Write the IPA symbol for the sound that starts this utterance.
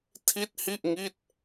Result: tʰ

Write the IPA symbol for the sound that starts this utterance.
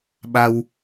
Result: ɓ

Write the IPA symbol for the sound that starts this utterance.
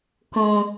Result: k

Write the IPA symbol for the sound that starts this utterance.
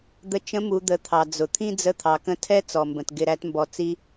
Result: d̪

